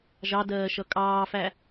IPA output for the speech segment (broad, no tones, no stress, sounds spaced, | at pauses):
ʒ ɑ d ɜː ʃ ʌ kʼ ɑː f æ